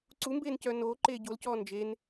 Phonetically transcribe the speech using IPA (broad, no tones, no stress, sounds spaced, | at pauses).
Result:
ǀ u m b eː n c œː n oː ǃ eː ɟ o l c ɔː n d͡ʒ e n